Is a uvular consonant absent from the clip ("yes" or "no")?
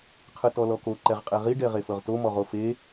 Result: no